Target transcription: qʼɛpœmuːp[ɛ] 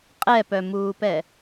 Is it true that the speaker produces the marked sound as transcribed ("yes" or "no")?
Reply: yes